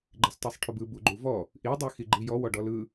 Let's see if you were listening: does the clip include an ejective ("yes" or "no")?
no